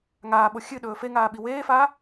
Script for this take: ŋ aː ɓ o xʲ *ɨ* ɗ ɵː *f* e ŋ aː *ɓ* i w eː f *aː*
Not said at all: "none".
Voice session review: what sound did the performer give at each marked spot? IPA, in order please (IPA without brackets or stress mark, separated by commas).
ɨ, f, ɓ, aː